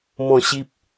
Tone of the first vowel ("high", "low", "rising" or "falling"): falling